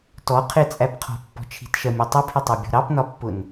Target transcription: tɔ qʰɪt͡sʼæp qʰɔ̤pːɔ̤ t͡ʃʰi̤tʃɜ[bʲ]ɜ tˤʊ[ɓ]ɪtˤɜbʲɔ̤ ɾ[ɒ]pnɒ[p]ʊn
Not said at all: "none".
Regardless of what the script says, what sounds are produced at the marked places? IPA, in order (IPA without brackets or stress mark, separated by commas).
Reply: mʲ, pʰ, ɑ, pː